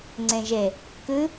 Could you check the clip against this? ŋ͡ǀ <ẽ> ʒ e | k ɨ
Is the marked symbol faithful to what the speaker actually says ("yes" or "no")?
yes